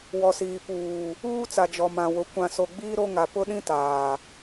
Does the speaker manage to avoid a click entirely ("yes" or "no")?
yes